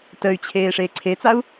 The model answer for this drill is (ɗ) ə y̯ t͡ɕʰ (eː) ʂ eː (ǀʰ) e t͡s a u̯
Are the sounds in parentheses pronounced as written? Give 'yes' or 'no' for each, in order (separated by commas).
no, yes, yes